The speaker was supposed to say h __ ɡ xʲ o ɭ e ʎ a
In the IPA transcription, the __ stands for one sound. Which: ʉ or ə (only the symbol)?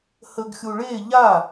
ə